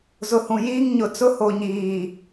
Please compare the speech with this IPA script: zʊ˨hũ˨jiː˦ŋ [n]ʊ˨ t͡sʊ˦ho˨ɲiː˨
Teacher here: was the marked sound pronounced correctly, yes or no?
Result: no